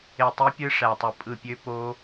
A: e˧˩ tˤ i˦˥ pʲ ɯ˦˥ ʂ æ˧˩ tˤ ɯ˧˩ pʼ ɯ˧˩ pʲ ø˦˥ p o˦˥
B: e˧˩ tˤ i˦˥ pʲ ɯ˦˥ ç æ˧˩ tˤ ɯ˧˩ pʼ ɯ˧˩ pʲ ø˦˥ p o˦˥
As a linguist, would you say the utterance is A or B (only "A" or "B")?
A